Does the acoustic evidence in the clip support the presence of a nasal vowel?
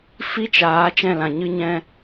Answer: yes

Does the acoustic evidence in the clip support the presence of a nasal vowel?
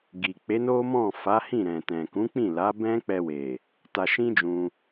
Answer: yes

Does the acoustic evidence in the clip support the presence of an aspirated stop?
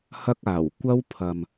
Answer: yes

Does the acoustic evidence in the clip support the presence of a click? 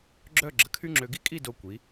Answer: yes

